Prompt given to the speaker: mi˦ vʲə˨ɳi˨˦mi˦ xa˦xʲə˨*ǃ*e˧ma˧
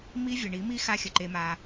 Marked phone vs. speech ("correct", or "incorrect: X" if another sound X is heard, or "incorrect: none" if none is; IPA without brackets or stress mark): correct